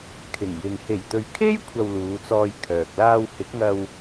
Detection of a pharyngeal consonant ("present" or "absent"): absent